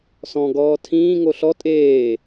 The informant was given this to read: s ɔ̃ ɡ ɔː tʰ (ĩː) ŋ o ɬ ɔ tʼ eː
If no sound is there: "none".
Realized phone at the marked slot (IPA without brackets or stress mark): ĩː